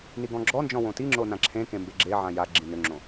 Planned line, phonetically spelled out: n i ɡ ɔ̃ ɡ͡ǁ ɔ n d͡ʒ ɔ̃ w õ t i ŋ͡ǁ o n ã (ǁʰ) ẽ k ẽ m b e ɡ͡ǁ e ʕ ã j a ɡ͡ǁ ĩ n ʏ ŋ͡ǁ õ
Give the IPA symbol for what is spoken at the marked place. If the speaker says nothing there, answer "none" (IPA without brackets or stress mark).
ǁʰ